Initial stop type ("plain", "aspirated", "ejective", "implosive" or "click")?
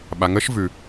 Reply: implosive